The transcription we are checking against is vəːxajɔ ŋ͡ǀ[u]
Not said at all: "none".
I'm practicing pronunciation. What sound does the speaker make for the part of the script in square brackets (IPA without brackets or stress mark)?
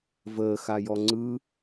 ɯ